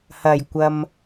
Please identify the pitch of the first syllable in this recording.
low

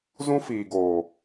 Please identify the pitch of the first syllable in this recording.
high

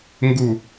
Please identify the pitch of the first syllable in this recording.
low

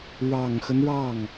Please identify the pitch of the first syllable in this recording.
low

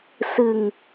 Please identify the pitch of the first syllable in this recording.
low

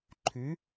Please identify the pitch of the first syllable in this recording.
rising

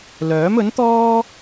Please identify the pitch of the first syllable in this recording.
rising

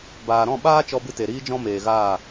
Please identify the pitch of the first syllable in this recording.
low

